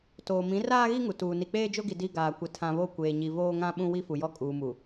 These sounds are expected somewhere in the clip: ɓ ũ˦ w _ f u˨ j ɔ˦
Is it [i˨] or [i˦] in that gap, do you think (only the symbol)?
i˦